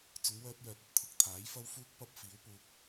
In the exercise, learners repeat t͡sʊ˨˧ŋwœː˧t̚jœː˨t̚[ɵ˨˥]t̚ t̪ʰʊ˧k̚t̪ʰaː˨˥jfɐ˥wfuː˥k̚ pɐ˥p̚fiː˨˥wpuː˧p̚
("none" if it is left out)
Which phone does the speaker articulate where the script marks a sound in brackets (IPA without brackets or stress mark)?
ɵ˨˥